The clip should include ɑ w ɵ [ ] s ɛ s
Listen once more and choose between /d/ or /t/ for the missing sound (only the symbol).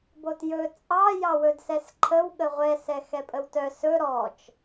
d